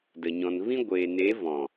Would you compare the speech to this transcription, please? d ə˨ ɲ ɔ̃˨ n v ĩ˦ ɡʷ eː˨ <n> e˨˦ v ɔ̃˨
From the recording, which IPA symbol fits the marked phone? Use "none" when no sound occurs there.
n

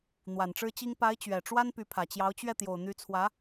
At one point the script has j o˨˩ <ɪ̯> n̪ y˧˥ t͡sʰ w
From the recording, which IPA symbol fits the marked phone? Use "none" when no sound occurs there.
ʊ̯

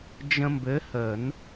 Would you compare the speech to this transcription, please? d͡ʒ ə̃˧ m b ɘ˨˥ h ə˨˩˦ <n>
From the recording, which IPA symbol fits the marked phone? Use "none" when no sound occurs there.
n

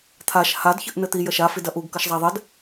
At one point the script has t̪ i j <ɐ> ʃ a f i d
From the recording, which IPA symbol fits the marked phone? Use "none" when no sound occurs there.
ɐ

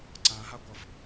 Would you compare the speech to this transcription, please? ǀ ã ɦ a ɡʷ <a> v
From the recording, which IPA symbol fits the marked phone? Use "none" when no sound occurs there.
ʌ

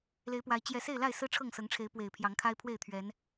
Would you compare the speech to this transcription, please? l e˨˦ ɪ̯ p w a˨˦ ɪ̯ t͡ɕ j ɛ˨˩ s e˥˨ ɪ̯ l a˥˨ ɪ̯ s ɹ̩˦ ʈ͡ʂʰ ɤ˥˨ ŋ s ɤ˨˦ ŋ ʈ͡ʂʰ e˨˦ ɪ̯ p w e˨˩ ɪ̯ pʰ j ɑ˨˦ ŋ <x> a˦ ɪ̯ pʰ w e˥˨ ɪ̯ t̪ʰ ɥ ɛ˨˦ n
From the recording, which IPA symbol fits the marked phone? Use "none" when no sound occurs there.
kʰ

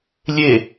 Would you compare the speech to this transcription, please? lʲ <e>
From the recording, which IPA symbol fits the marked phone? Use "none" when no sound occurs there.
e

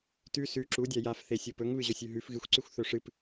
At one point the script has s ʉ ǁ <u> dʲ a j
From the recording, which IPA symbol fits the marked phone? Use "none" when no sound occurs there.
u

